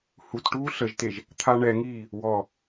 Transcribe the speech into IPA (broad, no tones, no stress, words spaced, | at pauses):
hutʈuː ɬəʒteʒ | t̪ʰaɳɛŋiː | wɔ